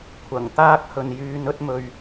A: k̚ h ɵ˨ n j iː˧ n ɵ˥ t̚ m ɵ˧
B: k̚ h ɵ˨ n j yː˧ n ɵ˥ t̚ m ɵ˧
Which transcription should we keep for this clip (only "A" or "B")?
B